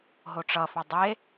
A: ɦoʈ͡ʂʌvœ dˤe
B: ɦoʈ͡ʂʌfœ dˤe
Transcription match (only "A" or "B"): B